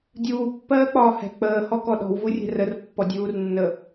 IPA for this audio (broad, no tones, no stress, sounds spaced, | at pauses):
dʲ uː pː ɜː k͡p ɒː h ɛ̤ k͡p əː h ɔ k ɔ ɗ ɔ̤ w v u rʲ ɛ̤ r ə r pː ɔ dʲ uː r nː ə